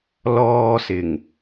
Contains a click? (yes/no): no